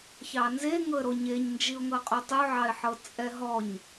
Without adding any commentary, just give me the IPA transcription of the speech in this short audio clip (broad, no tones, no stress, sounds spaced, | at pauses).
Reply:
ç ɑ n z e ŋ ɤ ə̯ ɾ o ɲ e ɲ n d͡ʒ i ʊ̯ ŋ ɤ qʼ o tˤ u ʕ ɑ ɪ̯ ħ ɤ t͡sʼ ɛ ɦ ɔ ɲ